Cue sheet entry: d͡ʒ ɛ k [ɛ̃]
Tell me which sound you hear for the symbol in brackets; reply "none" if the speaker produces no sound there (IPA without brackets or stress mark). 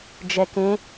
ẽ